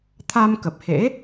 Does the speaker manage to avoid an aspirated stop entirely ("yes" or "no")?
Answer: no